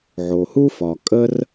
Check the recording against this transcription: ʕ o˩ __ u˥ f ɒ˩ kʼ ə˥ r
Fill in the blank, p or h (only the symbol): h